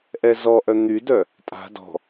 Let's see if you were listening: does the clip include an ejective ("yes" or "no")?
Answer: yes